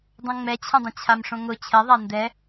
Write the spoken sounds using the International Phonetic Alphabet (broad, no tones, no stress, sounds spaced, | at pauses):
dˤ õ ŋ͡m ɛ t͡ɕʰ ə̃ dˤ ə̃ t͡ɕʰ a m ʂ õ ŋ ʊ t͡ɕʰ ɛ ðˤ a n d ɛ